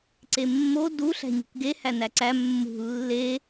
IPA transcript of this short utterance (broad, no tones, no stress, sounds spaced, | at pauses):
ǀ e mː o d u ɬ æ̤ ɲ ṳ k ɡ e h æ n æ ǀ æ mː ṳ lː e